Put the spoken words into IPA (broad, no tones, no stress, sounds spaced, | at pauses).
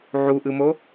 ʕ u ʔ ɯ m o